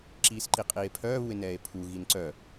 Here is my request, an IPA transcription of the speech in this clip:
ǁ iː s ǃ i qʼ iː e̯ pʰ œː β u e̯ n ɛː e̯ pʰ u ɣ i n ǀ œ

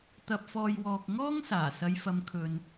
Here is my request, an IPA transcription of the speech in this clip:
t̪ ɐ˧ p̚ f ɔː˧ j w ɔː˧ k̚ ŋ ɔː˥ ŋ s aː˨˩ s ɐ˨˧ j f ɐ˨˧ m kʰ ɵ˨ n

